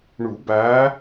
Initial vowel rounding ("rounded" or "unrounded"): rounded